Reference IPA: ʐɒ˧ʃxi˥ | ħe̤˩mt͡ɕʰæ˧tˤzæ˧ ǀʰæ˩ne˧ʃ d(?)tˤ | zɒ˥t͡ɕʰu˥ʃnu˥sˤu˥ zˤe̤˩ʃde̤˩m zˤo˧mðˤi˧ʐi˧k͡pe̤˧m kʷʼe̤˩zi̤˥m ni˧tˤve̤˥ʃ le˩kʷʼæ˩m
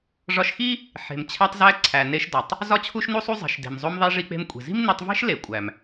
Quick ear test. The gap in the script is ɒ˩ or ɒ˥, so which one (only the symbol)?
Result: ɒ˩